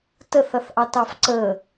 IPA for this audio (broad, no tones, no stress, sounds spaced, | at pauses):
t ə θ ʌ θ ʔ ɑ t ɑ f ǀ ə